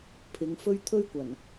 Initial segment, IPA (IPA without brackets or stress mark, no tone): pʰ